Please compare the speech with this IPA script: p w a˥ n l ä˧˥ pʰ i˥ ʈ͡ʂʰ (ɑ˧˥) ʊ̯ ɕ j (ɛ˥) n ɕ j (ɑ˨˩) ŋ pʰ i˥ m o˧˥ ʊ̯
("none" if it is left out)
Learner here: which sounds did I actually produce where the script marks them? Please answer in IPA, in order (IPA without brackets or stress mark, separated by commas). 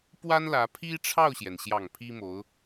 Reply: ɑ˥˩, ɛ˩, ɑ˨˩